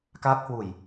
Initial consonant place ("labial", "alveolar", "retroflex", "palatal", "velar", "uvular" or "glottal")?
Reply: velar